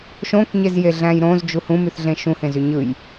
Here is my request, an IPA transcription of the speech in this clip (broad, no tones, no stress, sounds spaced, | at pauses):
ʃ õ k ɲ e z j e ɮ æ̃ j ɾ õ z d͡ʒ u h ũ m y θ ɮ ẽ ʃ ũ h ẽ z y ɲ ɯ j